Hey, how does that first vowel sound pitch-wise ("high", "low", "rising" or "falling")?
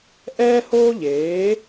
high